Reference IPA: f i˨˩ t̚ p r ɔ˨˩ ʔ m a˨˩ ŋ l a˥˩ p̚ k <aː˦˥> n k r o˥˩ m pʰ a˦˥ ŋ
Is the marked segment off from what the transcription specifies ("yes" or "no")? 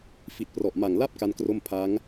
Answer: yes